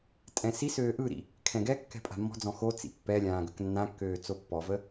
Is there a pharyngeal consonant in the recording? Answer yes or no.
no